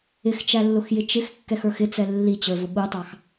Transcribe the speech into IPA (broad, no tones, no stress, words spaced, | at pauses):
ɪxt͡ʃælːʊxjɪ t͡ʃɪxkːɛx ə˞xɪt͡sɛ lːit͡ɕə˞vʊ ɠutˤɑx